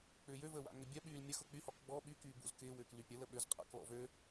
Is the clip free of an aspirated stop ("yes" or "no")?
yes